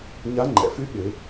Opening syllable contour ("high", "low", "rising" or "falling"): rising